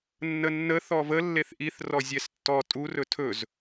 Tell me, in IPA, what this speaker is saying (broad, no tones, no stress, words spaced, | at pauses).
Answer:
nːənːə θɔvə lːeθʔiθ rɔzʲɛstːɔ tʼu rɵtʰɵz